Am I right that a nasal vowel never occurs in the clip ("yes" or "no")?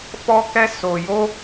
yes